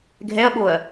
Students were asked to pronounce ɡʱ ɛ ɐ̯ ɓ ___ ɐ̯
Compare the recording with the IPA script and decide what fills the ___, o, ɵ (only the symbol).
o